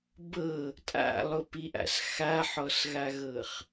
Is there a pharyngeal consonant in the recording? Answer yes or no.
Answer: yes